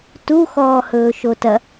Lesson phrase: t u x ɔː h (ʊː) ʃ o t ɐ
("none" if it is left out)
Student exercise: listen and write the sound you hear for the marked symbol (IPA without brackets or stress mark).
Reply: ɵː